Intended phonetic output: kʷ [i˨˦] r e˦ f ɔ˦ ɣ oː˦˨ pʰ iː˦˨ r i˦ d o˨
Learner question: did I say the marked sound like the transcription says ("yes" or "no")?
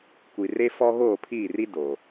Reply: no